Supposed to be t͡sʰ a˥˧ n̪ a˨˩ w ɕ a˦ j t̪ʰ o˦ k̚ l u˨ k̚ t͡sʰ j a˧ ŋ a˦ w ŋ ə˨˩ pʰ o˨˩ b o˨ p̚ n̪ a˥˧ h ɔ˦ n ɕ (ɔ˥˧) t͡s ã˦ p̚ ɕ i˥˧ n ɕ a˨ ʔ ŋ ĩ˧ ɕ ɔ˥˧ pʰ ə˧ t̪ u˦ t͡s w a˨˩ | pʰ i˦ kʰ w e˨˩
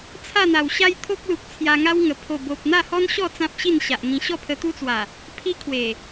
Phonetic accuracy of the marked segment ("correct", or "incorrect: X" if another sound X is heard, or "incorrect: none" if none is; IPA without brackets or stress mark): correct